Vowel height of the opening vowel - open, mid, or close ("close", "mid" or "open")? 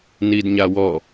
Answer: close